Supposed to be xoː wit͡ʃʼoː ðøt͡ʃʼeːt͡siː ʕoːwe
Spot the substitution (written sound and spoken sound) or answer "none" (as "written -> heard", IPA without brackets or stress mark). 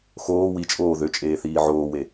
t͡s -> θ